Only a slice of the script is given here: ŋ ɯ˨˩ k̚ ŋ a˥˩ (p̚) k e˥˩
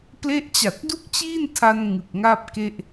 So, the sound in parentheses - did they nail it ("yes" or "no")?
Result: yes